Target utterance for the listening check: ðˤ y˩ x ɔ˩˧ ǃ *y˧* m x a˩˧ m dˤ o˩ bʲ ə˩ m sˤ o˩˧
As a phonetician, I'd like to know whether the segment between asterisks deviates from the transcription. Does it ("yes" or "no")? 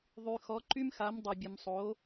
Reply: no